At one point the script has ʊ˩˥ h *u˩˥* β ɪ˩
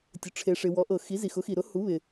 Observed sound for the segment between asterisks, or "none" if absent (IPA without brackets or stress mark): u˩˥